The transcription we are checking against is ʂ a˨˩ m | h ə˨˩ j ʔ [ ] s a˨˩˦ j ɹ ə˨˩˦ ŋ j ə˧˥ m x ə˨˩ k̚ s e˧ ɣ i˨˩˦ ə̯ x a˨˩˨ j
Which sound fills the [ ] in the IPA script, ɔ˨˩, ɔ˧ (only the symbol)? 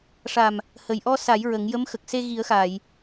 ɔ˧